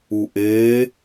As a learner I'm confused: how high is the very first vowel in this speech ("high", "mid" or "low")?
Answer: high